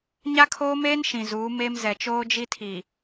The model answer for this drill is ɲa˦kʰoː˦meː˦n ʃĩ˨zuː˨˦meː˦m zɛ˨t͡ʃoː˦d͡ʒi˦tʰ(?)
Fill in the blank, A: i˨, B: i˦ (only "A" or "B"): A